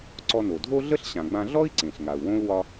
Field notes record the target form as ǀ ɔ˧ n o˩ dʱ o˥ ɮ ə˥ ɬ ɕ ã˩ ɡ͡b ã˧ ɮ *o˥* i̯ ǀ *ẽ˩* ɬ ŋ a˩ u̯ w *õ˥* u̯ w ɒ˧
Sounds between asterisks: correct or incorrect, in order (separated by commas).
incorrect, correct, correct